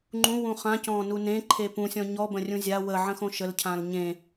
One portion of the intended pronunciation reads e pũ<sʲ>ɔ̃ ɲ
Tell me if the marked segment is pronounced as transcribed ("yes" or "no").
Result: yes